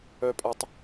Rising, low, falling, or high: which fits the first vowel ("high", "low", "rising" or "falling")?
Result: low